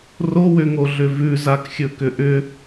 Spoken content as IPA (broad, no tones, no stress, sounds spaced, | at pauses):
r o w ʏ ŋ o ɮ ʏ v ʉ z a k xʲ ɵ k ʏ ʔ ʏ